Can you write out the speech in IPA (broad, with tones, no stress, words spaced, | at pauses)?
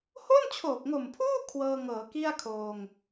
ho˥˩nt͡ɕʰoː˨˩k̚ŋo˨˩mpʰuː˥˩ kʰwɤː˧ŋɤː˩˦ki˥˩a̯ kʰoː˧ŋ